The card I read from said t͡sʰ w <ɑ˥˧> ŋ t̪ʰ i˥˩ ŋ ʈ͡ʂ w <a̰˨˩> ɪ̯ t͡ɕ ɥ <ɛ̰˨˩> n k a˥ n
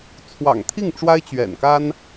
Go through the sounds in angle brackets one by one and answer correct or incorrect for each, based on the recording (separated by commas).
incorrect, incorrect, correct